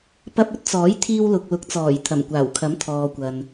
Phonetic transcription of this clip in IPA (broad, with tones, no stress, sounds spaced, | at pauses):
p ɐ˧ p̚ ɵ˥ t̚ t͡s ɔː˨˥ j t̪ʰ iː˧ w l ʊ˨ k̚ l ʊ˨˥ k̚ t͡s ɔː˨˩ j t̪ʰ ɐ˨˩ m kʷ aː˨˩ w kʰ ɐ˨˥ m t̪ʰ ɔː˨ kʷ ɐ˨ n